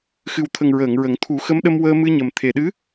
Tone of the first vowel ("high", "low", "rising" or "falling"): low